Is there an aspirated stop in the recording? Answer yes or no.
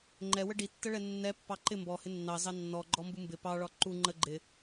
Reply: no